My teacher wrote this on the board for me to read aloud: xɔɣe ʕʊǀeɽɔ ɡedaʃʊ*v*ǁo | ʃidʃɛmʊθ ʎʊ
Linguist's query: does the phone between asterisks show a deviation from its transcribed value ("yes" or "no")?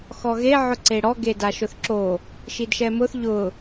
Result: yes